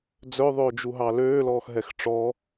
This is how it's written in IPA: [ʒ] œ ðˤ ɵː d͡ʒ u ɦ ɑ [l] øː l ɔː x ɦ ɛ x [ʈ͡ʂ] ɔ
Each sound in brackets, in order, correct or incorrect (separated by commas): incorrect, correct, correct